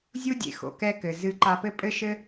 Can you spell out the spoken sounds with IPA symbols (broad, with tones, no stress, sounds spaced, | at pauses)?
zʲ u˦ dʲ ḛ˨ x o̰˨ k ɛ˦ k ɘ˨ z ɨ˧ ǃ a˧ p ɘ˦ pʼ ɘ˦ ʃ ɘ˦